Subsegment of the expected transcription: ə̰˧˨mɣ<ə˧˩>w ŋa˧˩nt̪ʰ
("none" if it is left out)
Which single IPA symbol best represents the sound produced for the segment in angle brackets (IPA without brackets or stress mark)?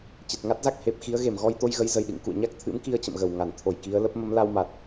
ə˧˩